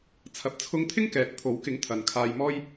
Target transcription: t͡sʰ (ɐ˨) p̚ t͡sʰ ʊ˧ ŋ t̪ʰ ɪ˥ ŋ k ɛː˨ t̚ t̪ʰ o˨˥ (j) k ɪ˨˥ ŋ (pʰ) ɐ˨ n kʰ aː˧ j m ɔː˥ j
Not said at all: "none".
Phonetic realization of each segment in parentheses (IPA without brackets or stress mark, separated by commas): ɐ˨, w, t̪ʰ